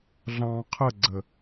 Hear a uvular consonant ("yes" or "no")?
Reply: yes